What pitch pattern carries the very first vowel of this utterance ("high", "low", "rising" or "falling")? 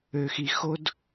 low